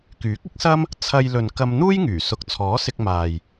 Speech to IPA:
kyː˨˥k̚ɪ˥k̚sɐ˥m | t͡sʰɐ˧jlɵ˨nkɐ˧m n̪uː˥jŋyː˨˩ sʊ˨k̚t͡sʰɔː˨˥ sɪ˧k̚ maː˨j

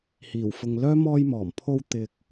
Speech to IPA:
hiː˨˩wfʊ˨ŋlœː˥ mɔː˧jmɔː˨˩mpʰo˧w t̪ɪ˧k̚

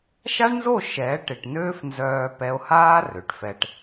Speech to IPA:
ʃa˦ɳnzo˦˨ ʃɛː˨˦ʈ ɪ˨ʈnøː˦fnzœː˧ pɛ˧o̯haː˦ rø˨ʈfɛ˧ʈ

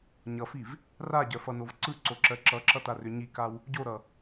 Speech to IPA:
ɲʌfiv | raɟɜfʌnov ǀɯǀoǁɜ ǁʌǁʌtarʏ ɲikaw | ɟoɾʌ

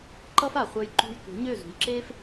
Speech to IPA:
ǃʌ˥f a˩χʷœ˧j ǃṳ˧jtʷe̤˩˥ɲø˥˩ zṳ˩jǁeː˥f

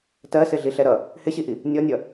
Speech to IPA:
tɜsɪɮiɬɛ ɾʌ | hɪɕiʔi | nʲɔnʲʌ

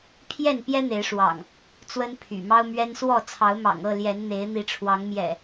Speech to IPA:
pʰjɛ˥˨npjɛ˦ n̪e˨˦ɪ̯ʂwɑ̰˨˩ŋ | t͡swə˦npʰy̰˨˩mɑ˦ʊ̯mɥɛ˦n swɔ˥˨ t͡sʰɑ˨˦ʊ̯mɑ̰˨˩ŋɤ˥˨ljɛ˨˦n n̪e˨˦ɪ̯n̪i˨˦ʈ͡ʂʰwɑ˨˦ŋ mjɛ̰˨˩

